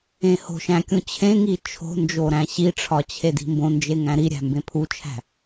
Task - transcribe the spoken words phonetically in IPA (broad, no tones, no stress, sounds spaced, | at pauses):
ẽ h o̤ ʃ æ̃ kʲ ũ t͡ɕʰ ẽ ŋ i t͡ʃʰ o̤ n d͡ʒ o ɾ æ̃ ɕ i ʈ͡ʂʰ ɒ t͡ɕʰ e d i̤ m b õ n d͡ʒ e ŋ æ̃ ɾ i ɾʲ æ̤ m b ẽ pʰ u t͡ʃʰ æ̤